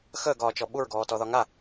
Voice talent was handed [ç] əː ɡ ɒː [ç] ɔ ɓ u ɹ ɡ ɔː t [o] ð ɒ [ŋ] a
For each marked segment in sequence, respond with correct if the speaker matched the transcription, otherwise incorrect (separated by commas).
incorrect, incorrect, incorrect, correct